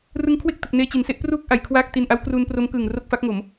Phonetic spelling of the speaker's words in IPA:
r ɯ˦˥ ŋ kʰ w e˥˩ k̚ t ɯ˨˩ k̚ n eː˧ t͡ɕ i˩˦ n s e˦˥ ʔ p r uː˥˩ k̚ ʔ a˩˦ j kʰ w aː˥˩ k̚ t i˧ n ʔ a˦˥ w k r uː˧ n p r o˦˥ m k ɯː˨˩ ŋ r o˥˩ k̚ f a˦˥ k̚ ŋ o˩˦ m

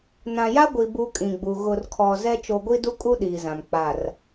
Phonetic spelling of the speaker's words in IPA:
n ã˨ j a˦ ɡʷ i˨ b u˦ kʼ ĩ˨ ɡ͡b u˨ ɣ ʊ˨ r kʰ ɔ˨ z ɛ˦ t͡ʃ o˨ ɡʷ i˦ d u˦ kʼ u˦ ɗ iː˨ z ã˨ m k͡p a˨ r

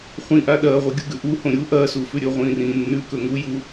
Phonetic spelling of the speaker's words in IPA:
χʷ ĩ ʔ a ɗ ɐː ʁʷ i ɡʲ u ɡ ʉ ʔ u h õ ɾʲ u ʔ ɐː s u f ʉ ɾʲ ɵ ʁʷ ĩː r ĩː nː ʉ k ɵ ŋ u j u

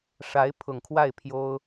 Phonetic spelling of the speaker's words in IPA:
ʂ a˧˥ ɪ̯ pʰ ʊ˨˩ ŋ kʰ w a˥˩ ɪ̯ pʰ j o˥ ʊ̯

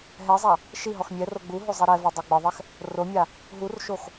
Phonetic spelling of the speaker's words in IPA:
ɦ ɛ zˤ a | ʃ i ɦ ɔ x mʲ ɛ r o ɡ͡b u ɦ o zˤ i ɾ ɛ v ɔ dˤ ɛ ɡ͡b ɪ ðˤ ɛ x | r o mʲ a | ɦ u r ʃ o x

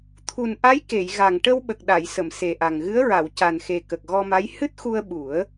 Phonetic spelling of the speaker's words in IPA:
t̪ʰ u˨˩ n ʔ a˧˥ j k e˨˩˨ j ɣ a˨˩ ŋ ʈ ə˧ w ɓ ə˨˩ k̚ ɗ a˨˩˨ j s ə˨˩˨ m s e˨˩ ʔ a˨˩ ŋ ɣ ɨ˧˥ ə̯ ɹ a˨˩˨ w c a˨˩ n x e˨˩ k ə˨˩ k̚ ɣ ɔ˧ m a˧˥ j h ɨ˦˥ t̚ x u˧ ə̯ ɓ u˨˩˦ ə̯

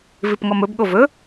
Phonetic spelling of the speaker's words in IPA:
v i p ŋ ɔ m ɵ b ɠ o v ɵ

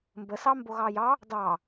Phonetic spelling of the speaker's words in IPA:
m b ə s ɑ m b o ɣ ɑ j ɑ | d ɑ

